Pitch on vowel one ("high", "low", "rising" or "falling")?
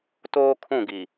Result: high